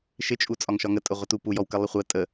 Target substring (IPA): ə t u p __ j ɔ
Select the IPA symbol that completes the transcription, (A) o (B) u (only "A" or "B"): B